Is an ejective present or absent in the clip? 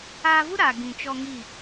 absent